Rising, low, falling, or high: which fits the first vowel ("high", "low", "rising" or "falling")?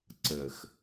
low